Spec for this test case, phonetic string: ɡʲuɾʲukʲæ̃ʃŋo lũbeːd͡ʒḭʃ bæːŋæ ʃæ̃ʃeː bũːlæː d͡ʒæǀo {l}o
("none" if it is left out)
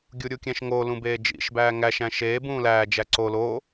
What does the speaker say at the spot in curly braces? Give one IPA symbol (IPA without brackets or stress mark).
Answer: l